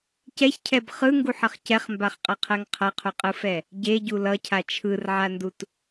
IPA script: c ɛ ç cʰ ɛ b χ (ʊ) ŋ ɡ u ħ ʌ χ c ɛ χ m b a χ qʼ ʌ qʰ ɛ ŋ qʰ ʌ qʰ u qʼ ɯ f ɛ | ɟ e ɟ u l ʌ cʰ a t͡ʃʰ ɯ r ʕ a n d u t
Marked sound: incorrect: ɯ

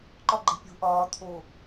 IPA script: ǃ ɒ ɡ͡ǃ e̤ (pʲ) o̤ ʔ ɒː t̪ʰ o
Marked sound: correct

